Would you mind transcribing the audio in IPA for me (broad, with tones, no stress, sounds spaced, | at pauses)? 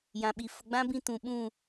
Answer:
j ã˨ ɓ i˨ f ʊ˨ ɡ͡b ã˦ b ĩ˦˨ t ũ˨ ɓ ũ˦˨